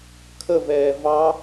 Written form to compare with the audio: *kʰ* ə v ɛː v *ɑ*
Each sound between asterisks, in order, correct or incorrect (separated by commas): correct, correct